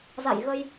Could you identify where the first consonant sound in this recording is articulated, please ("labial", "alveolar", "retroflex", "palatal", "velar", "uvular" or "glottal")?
alveolar